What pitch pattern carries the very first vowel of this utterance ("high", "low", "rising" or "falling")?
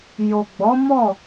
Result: low